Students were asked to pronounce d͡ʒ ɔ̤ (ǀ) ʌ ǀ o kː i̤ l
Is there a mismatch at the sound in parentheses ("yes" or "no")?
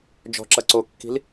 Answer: yes